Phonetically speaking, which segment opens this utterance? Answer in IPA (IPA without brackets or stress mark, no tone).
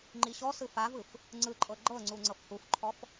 ŋ͡ǃ